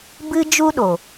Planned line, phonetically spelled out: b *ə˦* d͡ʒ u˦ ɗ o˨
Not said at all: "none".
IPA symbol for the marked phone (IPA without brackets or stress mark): ɨ˦